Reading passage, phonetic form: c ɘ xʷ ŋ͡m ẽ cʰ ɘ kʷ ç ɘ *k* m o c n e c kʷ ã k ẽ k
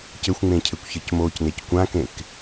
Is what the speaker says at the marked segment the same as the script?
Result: no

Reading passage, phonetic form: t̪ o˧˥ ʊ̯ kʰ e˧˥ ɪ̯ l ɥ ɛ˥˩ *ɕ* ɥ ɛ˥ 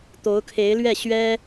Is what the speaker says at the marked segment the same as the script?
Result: yes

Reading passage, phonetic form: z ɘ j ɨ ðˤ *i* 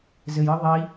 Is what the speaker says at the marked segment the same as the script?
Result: yes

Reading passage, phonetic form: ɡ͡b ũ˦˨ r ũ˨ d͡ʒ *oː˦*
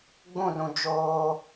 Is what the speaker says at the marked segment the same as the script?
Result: yes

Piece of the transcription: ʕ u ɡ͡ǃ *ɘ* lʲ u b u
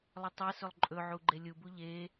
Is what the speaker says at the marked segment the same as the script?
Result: no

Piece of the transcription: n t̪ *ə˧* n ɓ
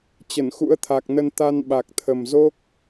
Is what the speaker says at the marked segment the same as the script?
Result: no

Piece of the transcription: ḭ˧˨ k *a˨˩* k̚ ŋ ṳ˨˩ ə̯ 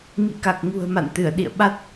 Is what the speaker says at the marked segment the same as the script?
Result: yes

